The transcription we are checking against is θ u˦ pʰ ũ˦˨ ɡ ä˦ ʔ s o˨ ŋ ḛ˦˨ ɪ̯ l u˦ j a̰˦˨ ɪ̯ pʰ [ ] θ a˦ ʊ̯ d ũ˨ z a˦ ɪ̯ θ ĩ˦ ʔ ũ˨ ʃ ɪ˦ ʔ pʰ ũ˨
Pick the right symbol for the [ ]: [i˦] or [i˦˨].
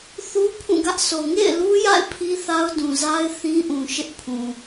i˦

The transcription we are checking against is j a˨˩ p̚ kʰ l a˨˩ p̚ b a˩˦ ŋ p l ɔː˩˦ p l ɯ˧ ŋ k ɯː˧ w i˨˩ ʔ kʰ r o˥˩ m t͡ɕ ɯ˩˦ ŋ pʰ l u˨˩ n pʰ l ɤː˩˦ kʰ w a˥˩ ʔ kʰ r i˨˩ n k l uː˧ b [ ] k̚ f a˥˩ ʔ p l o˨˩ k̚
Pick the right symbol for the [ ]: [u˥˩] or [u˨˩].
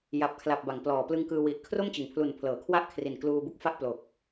u˥˩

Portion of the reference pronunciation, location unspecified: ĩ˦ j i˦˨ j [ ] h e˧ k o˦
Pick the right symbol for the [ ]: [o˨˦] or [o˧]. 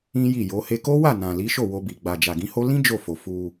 o˨˦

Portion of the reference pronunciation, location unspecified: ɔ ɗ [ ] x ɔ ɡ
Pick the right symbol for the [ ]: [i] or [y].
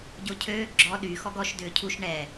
y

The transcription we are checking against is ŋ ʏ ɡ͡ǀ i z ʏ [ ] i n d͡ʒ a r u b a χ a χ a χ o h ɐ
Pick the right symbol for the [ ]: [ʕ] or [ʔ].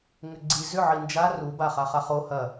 ʕ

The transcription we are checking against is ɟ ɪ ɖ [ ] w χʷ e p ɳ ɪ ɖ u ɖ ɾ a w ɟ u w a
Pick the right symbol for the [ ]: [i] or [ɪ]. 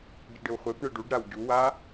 ɪ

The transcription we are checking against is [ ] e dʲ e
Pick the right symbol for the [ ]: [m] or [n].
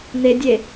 n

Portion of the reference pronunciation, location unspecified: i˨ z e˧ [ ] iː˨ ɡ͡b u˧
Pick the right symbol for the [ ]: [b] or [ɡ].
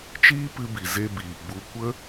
b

